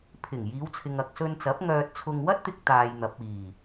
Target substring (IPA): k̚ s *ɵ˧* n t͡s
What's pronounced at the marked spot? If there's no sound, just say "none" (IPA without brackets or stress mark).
ɵ˧